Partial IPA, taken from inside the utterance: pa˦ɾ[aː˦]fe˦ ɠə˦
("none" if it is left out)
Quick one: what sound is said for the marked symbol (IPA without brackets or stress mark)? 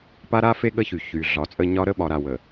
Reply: a˦